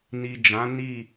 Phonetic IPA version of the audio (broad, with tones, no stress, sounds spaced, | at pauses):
n i˨ d͡ʒ ã˨˦ n i˦˨